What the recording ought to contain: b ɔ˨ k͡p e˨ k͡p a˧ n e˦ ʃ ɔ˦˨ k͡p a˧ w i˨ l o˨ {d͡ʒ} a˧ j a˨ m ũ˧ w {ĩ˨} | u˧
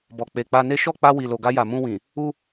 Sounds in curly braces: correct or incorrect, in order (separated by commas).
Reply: incorrect, correct